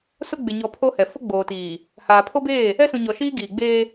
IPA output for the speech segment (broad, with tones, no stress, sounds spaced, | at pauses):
s ʊ˦ ɡ͡b ɪ˨ ɲ ɔ˨ pʰ o˦ h ɛ˨ f ʊ˦ ɡ͡b oː˨ t iː˨ | h aː˨ pʰ o˦ b eː˦˨ | ɛ˦ s ũ˨ ɲ ɔ˨ ʃ iː˦ ɡ iː˨ ɡ͡b eː˦